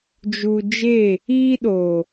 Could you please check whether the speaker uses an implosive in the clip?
yes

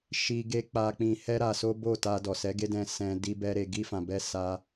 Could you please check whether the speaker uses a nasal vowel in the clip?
yes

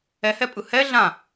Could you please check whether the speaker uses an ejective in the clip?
yes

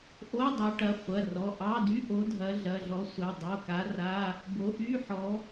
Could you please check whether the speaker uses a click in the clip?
no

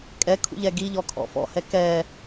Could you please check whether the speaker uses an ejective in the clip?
yes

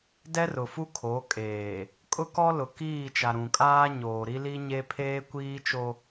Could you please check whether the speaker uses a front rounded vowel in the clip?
no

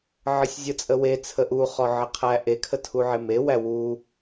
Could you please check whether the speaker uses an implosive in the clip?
no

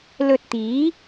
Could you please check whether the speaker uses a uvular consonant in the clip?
no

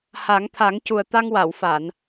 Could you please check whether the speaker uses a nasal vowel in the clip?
no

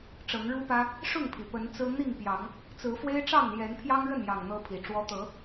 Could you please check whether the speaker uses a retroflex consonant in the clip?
yes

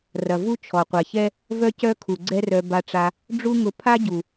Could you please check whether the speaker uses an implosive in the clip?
no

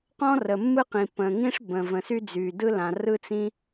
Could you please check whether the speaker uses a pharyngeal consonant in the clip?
no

